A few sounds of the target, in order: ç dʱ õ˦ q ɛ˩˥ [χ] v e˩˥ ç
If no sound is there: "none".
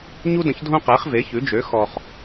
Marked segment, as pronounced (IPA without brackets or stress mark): χ